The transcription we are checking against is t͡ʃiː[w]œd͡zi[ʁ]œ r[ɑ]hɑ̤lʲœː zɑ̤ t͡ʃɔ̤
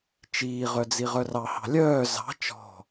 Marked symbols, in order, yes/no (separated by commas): no, yes, yes